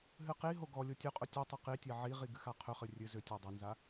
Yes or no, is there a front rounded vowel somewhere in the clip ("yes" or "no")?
yes